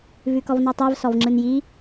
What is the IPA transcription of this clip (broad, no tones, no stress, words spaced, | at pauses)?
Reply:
vʉkɔvnɔtˤɛv sɔvŋ͡ǁɯnji